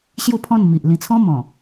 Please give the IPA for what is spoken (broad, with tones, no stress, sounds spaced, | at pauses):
ɕ j u˥˧ pʰ ɔ̃˥˧ n m i˨ ʔ l ĩ˧ t͡sʰ ɔ̃˦ m ɔ̃˨˩